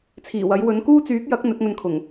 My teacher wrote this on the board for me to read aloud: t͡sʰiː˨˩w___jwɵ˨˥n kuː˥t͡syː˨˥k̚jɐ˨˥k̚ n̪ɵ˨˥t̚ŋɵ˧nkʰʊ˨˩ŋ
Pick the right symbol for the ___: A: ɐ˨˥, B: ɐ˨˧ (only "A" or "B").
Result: A